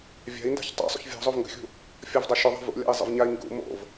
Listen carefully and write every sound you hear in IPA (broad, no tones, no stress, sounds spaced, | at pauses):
vʲ a̤ i̯ n d a̤ ç tˤ a̰ sˤ ṵ ç vʲ ɔ̤ zˤ o v ŋ ɡ ə̤ xʲ ṳ | fʲ ɔ v dˤ a ʃ ʏ ðˤ a̤ v ṵ lʲ a̰ i̯ zˤ ə̰ v ɲ a i̯ ŋ ɡ ṵ m o̰ v